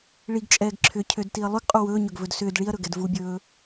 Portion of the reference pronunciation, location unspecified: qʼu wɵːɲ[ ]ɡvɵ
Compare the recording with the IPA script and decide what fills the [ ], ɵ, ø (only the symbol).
ɵ